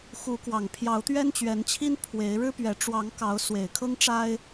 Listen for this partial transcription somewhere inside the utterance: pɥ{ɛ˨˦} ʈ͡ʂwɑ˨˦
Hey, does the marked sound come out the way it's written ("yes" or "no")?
yes